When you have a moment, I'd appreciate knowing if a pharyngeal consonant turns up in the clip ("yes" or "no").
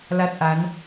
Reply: no